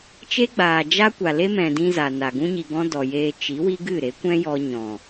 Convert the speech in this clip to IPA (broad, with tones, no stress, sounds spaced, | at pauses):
t͡ʃ e˦ ɡ͡b aː˨ d͡ʒ a˦ kʷ a˨ l e˦ m ɛ̃˨ d ĩ˧ z a˨ n a˨ ɡ ũ˦ ɲ i˧ ɡ ɔ̃˦ d ɔ˨ j eː˧ t͡ʃ i˨˦ w i˦ ɡ ɨ˦˨ ɾ e˨˦ kʷ ɛ̃˦ j ɔ˧ ɲ ɔ̃˨